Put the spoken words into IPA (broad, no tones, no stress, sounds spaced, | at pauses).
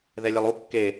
ð ɛ lʲ ɛ lˠ u kː e